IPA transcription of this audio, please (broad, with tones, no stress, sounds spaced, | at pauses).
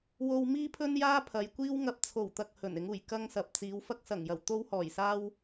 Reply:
w o˧ w m iː˥ pʰ ɵ˥ n j aː˥ pʰ ɐ˨˧ j kʷ iː˥ w ŋ ɐ˧ p̚ t͡sʰ o˨˩ w t̪ ɐ˨ k̚ h ɵ˨˩ n ɪ˨˧ ŋ uː˨˩ j k ɐ˥ ŋ s ɐ˨ p̚ t͡s iː˨˧ w f ɐ˥ k̚ s ɐ˨˩ ŋ j ɐ˨˩ w t̪ o˥ w h ɔː˨˩ j s aː˥ w